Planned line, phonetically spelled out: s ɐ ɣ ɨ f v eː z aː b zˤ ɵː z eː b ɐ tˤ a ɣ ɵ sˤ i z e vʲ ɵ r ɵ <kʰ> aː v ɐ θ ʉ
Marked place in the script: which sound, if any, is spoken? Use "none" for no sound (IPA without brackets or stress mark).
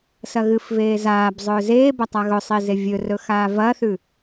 x